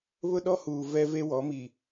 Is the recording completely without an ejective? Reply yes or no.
yes